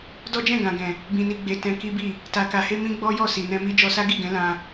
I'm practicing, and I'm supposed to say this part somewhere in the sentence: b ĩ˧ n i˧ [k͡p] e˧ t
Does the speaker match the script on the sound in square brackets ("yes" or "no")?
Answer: no